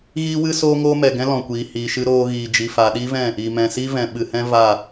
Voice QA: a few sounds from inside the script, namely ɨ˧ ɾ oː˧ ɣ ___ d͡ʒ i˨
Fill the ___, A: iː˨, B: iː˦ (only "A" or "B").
A